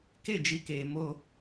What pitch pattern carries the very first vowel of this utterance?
falling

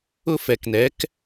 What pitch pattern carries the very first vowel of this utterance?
high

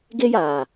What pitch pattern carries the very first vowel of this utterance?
high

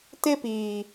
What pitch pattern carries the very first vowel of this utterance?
high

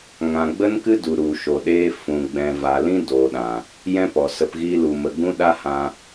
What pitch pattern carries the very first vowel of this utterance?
low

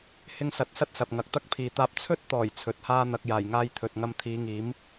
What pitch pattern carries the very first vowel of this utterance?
high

